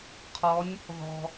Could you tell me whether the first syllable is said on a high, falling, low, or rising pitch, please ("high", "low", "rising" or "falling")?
rising